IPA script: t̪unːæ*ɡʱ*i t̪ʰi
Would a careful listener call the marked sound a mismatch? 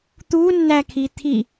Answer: yes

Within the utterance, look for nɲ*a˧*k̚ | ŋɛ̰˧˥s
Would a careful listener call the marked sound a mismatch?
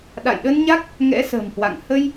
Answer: yes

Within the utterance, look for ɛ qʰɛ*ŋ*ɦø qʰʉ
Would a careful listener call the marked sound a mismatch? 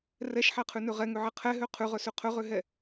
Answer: yes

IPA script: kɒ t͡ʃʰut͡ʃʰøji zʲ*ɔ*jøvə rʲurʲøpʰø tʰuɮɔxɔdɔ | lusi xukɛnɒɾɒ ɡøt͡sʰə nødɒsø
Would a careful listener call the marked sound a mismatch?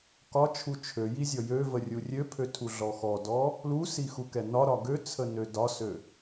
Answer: no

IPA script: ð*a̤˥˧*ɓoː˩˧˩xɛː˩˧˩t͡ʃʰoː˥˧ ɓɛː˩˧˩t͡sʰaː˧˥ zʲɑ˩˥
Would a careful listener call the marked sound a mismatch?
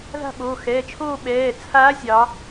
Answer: no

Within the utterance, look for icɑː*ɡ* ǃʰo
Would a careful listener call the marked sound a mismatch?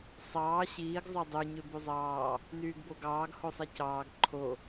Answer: no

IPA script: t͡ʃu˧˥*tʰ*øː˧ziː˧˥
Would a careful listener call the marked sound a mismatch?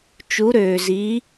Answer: yes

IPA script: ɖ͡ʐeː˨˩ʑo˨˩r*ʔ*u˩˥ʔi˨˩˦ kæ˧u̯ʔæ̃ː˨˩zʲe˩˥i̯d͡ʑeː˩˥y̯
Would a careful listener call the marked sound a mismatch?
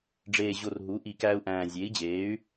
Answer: yes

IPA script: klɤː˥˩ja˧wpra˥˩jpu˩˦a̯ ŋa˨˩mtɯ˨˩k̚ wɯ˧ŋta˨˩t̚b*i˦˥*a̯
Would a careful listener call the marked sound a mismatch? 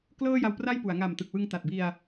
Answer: yes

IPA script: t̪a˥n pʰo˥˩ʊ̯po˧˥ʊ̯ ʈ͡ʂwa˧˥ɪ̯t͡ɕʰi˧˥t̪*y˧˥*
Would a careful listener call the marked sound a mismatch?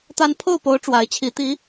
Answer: yes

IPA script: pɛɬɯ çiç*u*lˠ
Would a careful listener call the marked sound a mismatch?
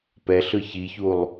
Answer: no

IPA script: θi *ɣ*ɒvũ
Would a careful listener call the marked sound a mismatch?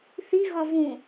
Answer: no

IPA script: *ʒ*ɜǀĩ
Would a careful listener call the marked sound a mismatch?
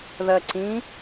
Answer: yes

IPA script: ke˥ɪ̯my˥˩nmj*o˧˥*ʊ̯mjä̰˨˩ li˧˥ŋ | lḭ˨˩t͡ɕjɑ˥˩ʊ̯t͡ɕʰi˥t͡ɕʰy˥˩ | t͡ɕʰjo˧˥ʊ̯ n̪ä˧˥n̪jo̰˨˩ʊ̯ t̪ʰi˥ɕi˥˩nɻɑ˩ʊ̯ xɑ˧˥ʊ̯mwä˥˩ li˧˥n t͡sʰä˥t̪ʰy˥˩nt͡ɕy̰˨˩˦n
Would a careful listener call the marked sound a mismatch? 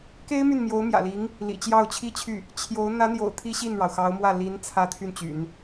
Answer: no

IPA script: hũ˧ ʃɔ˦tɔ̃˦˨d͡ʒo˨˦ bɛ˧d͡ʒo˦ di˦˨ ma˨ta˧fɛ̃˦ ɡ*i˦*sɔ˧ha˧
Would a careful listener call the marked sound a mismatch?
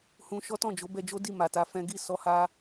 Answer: yes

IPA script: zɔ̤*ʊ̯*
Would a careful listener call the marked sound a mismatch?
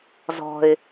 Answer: yes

